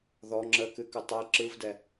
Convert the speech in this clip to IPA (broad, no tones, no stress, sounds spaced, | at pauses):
ð ɔ ŋ͡ǁ ə k ɨ k ɨ tˤ ə i̯ ǁ ɯ v d ɛ